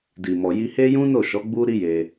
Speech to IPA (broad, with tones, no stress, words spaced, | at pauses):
di˨ mɔ˨ji˧he˦ jũ˦no˦˨ʃɔ˨˦ ɡ͡bu˦ɾi˦je˧